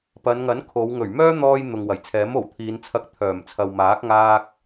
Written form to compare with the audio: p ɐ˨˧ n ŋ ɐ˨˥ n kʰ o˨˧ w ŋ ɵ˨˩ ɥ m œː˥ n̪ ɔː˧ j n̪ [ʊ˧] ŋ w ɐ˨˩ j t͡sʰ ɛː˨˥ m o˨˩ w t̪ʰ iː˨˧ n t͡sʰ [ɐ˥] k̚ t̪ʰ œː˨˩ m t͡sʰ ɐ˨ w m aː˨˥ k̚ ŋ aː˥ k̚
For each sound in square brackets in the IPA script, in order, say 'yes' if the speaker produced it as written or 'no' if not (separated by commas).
no, no